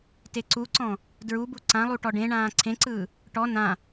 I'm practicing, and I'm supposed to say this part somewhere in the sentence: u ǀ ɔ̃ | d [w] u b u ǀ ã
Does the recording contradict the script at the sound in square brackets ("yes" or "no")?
yes